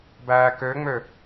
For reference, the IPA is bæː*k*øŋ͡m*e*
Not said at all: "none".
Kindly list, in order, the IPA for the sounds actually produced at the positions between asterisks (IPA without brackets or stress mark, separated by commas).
k, ø